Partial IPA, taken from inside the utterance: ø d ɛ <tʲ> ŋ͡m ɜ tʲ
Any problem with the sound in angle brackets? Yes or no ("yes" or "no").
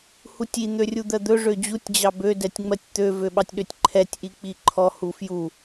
no